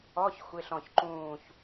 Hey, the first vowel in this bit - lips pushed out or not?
yes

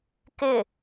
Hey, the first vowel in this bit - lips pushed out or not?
no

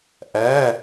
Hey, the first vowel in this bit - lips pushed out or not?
no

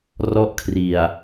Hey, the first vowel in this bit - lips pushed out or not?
yes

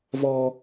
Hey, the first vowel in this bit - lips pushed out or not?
yes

